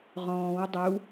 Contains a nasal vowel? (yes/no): yes